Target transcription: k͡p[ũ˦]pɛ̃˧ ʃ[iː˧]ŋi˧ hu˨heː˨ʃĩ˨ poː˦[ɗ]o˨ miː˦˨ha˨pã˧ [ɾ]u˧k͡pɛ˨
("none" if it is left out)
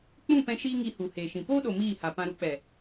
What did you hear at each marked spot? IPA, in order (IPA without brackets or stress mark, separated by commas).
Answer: ũ˦˨, iː˦, ɗ, ɾ